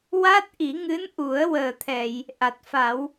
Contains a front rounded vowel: no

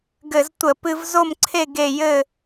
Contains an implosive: no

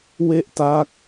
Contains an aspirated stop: no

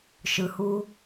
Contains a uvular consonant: no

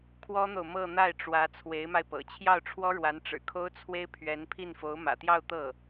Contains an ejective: no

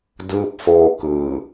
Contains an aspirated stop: no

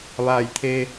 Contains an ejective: no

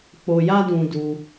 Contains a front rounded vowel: no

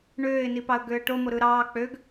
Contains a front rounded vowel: yes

